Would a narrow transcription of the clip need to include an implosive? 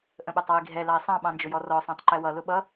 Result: yes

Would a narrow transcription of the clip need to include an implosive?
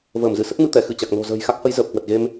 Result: no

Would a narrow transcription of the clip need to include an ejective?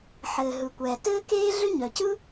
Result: no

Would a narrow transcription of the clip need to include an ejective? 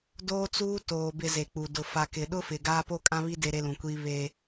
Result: yes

